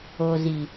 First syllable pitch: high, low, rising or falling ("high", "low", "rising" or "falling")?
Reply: low